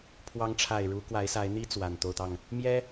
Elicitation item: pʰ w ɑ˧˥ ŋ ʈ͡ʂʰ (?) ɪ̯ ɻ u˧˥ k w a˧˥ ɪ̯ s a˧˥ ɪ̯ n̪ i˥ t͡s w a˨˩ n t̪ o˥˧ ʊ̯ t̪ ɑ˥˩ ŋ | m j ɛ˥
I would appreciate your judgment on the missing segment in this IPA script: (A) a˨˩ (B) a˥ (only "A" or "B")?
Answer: A